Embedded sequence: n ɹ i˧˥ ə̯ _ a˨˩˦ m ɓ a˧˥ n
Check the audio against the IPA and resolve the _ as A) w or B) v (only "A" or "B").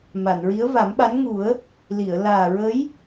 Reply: B